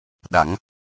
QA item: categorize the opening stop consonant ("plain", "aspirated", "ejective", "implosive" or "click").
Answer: implosive